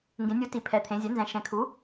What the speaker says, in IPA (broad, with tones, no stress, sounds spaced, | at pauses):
ŋ ɡ ẽ˩˧ nʲ u˩˥ t i˩˧ pʰ ɛ˩˧ t̪ʰ ẽ˩˧ zʲ ɛ˩˥ n z ɛ̃˩˥ ʃ ɛ̃˩˧ kʰ u˩˥